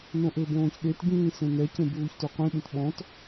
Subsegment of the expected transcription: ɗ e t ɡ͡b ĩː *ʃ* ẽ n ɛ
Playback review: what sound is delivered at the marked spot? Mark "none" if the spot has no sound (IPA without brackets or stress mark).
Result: s